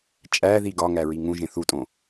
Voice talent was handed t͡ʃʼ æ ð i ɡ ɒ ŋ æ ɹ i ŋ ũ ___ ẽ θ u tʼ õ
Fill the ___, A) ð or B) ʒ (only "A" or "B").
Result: B